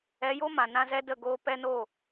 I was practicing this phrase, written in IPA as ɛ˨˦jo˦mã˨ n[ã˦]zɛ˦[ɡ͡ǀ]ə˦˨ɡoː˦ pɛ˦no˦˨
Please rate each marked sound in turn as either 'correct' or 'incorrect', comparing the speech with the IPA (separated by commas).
correct, incorrect